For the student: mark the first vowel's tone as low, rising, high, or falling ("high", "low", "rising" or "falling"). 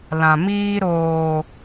low